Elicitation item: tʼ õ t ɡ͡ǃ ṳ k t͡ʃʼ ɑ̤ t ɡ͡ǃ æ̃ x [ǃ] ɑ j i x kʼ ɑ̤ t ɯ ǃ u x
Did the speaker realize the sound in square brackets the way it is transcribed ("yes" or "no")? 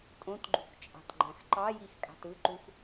yes